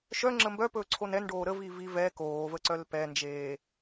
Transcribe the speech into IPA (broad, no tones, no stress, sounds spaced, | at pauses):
ʃ œ ŋ͡ǁ ə m b œ p ɵː ǀʰ o n ɛ n ɖ oː ɾ ə v i v i v ɛ k oː v ə ǀ œ l p ɛ n d͡ʒ eː